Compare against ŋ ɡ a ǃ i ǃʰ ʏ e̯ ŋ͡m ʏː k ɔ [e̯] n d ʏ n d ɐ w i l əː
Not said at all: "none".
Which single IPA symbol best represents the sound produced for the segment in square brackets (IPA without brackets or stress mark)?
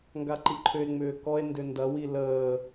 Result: e̯